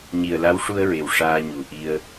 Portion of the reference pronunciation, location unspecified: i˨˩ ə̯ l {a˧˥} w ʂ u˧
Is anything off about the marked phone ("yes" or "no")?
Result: no